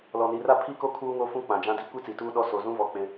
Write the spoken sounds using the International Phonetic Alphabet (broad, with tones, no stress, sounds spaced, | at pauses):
l ɔ˨ n i˨ r a˦ pʰ i˦ k o˦ kʰ uː˦ ŋ o˦ f ũ˦ k͡p ã˨ d͡ʒ ã˦ d i˦ kʷ i˦ t͡s i˨ t uː˦ ɗ ɔ˦ s o˨ z ũ˦ v ɔ˦ k͡p ɪ˦